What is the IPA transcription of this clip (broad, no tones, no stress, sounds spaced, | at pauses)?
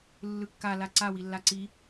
lː ɯ kː a l a ǀ a w i lː a ǀ i